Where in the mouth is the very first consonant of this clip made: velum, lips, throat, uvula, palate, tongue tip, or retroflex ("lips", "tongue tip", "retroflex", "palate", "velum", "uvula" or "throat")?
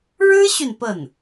retroflex